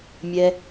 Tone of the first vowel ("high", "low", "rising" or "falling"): high